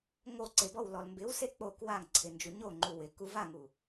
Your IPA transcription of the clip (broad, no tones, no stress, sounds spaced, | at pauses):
ŋ o ǀ e b ɔ w l ɔ l m b ɪ w s e k͡p o k w a ŋ ǀʰ ɪ n d͡ʒ u ɲ o ŋ͡ǃ u w ɪ k u v a ŋ u